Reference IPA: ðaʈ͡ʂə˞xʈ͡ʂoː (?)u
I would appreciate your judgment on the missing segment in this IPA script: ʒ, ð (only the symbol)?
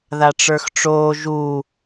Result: ʒ